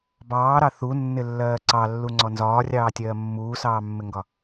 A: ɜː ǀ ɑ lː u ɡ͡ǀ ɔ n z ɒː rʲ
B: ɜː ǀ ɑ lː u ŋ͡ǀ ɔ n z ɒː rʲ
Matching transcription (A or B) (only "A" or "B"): B